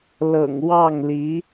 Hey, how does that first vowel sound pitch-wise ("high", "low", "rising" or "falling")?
low